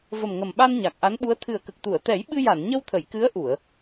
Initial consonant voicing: voiced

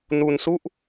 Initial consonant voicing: voiced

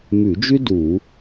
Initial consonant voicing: voiced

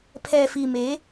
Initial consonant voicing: voiceless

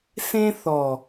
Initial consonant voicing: voiceless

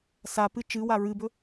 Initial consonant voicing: voiceless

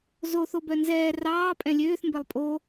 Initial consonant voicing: voiced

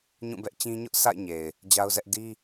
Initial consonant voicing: voiced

